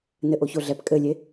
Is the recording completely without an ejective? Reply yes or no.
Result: no